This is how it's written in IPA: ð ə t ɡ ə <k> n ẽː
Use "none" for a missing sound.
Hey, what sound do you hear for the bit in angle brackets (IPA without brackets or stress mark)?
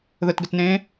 t